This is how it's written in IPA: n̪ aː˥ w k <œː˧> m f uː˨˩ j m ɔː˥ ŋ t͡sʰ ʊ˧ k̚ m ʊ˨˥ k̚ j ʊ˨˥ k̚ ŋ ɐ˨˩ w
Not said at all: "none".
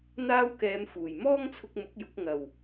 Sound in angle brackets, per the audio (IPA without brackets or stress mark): ɛː˧